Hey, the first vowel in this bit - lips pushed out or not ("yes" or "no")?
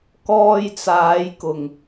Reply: yes